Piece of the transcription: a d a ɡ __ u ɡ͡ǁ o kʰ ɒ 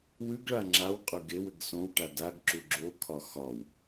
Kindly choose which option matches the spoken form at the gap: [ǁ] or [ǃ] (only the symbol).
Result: ǁ